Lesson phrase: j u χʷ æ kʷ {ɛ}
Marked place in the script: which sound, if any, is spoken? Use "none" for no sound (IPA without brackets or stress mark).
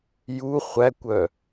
œ